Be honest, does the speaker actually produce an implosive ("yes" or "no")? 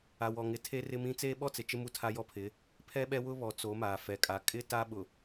yes